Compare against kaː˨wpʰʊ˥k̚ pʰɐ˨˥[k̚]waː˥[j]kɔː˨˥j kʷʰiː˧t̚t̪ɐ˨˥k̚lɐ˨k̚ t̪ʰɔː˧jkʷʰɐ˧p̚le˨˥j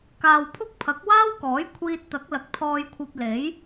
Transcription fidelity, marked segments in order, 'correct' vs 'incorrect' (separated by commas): correct, incorrect